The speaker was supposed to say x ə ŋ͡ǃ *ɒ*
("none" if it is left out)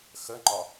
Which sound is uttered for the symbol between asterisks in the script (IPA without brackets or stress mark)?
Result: ɒ